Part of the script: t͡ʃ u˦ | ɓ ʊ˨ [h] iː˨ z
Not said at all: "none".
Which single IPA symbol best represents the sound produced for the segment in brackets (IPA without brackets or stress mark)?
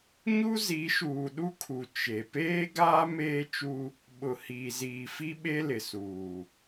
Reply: h